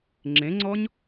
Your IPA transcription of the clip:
ŋ͡ǁ ẽ ŋ͡ǀ ɔ ɲ

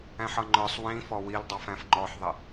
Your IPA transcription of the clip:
æ̃ ħ ʌ ŋ͡ǃ ə˞ sˤ w ĩ f ɔ w i l dˤ ɑ f æ̃ f ŋ͡ǃ ɔ ħ ðˤ ɪ

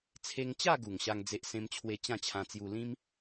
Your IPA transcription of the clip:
t͡sʰ e˧ ŋ t͡ɕ a˥˧ ɡ u˨˩ ŋ ɕ a˧ ŋ d͡z e˦ ʔ s ẽ˦ m t͡ɕʰ w e˥˧ t͡ɕ ã˥˧ t͡ɕʰ ã˧ t͡s j u˧ l ĩ˦ m

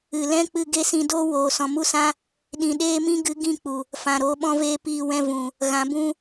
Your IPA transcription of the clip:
ɨ˨ l ɛ̃˦ k͡p ɨ˧ ɡ e˦ s ĩ˧ d o˦ w oː˨ s ɔ̃˨ m u˦ s ã˦ | ɗ ĩ˨ ɗ eː˦ m ĩ˦ ɡ ɨ˨˦ ɡ ĩ˦˨ k͡p u˨ | f ã˨ ɾ oː˧ ɓ ɔ̃˦ v eː˦ p iː˦˨ w ɛ̃˦ v ũ˨ | ɣ ã˨˦ b ũ˦

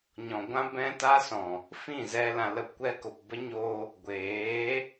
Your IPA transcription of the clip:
ɲ ɔ̃˨ ɡʷ ã˦ b ɛ̃˦ t a˦ s ɔ̃˨ | f ĩ˦˨ z ɛ˧ l ã˧ l ə˦˨ p kʷ ɛ˦ k o˨ p b ə˦ ɲ o˧ | ɡʷ eː˨˦

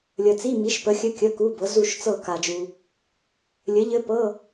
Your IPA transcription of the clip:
lʲ ə˨ t͡s i˧˥˧ m i˨˥ ʃ p ə˨˥ xʲ ɘ˧˥˧ kʲ ə˧˥˧ k u˧˥˧ b ɤ˨˥ z u˦˨ ʃ t͡s ɤ˦˨ k a˨ d͡ʒ u˨ | lʲ ɘ˨˥ ʎ ɘ˦˥ p ɤ˧˥˧

